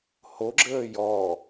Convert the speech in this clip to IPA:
hoɡ͡ǁəː jɔ

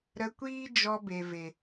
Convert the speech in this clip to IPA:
ɾə˧kʷiː˦ d͡ʒɔ˧be˨ve˨

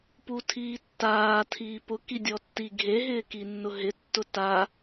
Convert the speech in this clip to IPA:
putʰiːtːaː tʰiːpʊki dʲɔtːi ɡʱe ɦɪːkinːʊɦɪ tːʊta

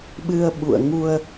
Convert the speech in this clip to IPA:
ɓɨ˧ə̯ɓṵ˧˨ə̯ ŋu˧ə̯

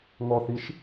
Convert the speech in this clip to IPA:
ŋɔθiʃ

